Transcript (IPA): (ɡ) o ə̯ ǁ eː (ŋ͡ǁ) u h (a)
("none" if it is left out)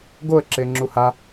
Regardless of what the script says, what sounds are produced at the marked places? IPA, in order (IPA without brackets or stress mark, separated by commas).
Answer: ɡ, ŋ͡ǁ, a